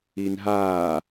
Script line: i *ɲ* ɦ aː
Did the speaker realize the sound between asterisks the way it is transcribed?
no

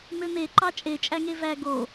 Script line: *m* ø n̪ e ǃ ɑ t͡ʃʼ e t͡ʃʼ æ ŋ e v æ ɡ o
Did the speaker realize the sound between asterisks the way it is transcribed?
yes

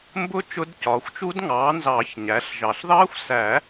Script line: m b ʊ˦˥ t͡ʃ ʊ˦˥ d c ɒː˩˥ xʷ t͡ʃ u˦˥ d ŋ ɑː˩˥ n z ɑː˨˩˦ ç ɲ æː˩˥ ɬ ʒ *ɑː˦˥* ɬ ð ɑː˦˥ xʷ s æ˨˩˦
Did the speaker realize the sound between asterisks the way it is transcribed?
no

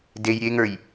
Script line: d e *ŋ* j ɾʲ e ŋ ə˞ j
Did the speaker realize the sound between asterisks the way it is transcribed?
no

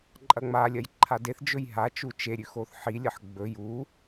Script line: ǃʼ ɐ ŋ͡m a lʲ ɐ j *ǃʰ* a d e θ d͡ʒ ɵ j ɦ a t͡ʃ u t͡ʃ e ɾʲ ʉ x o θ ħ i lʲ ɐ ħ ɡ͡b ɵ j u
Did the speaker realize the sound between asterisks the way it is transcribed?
yes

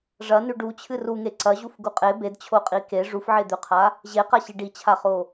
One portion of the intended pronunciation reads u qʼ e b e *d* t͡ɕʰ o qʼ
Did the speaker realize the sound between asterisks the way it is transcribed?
yes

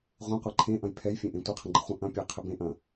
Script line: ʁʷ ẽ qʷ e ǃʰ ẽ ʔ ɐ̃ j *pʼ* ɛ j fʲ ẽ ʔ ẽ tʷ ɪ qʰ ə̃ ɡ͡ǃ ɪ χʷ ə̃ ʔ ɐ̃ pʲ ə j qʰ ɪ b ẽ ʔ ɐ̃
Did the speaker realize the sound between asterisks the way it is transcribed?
no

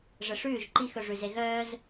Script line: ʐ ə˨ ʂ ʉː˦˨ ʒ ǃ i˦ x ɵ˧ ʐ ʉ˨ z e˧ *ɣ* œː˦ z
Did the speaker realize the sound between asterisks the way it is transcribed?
yes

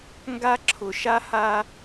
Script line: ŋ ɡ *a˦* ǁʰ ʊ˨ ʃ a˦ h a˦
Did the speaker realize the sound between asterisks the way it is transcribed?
yes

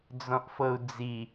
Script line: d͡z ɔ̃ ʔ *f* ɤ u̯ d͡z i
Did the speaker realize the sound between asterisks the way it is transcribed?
yes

